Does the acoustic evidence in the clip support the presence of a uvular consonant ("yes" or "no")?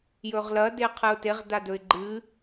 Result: yes